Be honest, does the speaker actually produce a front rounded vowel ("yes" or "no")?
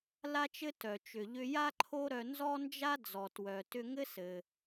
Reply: yes